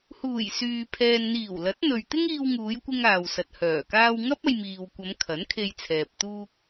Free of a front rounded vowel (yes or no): no